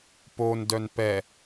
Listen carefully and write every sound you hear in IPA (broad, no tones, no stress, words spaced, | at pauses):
pon dœnpɛ